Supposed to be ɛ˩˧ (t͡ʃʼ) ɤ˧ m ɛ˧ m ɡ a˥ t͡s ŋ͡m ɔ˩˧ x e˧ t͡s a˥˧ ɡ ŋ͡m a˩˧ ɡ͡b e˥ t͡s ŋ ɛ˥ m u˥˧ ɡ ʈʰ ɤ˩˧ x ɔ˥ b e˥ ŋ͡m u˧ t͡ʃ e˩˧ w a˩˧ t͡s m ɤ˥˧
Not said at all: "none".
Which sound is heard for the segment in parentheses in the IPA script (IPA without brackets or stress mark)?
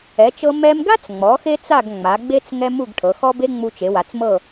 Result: t͡ʃ